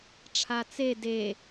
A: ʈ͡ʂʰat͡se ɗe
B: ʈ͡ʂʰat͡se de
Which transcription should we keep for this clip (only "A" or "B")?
B